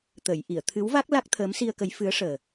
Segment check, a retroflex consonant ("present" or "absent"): present